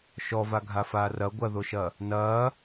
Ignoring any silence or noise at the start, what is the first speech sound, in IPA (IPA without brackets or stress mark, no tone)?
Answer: ʃ